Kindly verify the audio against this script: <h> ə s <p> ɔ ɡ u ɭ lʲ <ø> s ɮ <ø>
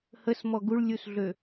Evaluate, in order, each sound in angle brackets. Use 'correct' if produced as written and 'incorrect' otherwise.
correct, incorrect, incorrect, correct

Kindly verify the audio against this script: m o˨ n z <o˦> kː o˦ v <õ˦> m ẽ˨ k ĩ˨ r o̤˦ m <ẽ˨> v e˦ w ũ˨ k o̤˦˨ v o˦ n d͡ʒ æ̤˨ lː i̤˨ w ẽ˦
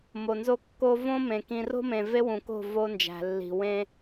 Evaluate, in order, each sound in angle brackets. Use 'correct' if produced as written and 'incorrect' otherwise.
correct, correct, correct

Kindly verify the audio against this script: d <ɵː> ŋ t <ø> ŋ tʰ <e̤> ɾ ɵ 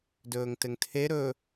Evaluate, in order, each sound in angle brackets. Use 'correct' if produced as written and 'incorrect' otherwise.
correct, incorrect, incorrect

